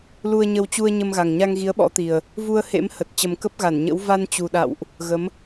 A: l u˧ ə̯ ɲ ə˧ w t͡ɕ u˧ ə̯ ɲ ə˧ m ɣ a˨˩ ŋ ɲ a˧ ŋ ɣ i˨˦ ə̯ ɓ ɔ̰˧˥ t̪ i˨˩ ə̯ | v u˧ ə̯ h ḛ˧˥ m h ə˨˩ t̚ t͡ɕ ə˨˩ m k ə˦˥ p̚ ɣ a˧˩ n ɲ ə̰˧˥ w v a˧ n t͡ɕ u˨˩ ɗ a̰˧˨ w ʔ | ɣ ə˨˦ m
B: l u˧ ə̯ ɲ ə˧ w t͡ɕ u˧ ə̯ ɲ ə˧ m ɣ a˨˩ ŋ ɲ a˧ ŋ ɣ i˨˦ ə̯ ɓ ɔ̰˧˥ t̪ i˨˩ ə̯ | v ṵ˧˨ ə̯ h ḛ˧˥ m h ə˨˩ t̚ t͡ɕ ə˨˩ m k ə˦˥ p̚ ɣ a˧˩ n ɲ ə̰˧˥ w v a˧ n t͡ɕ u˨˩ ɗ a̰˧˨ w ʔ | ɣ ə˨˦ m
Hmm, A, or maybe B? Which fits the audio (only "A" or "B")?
A